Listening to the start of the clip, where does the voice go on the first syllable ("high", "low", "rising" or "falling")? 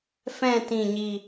falling